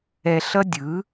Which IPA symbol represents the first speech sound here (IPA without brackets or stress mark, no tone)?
ɛ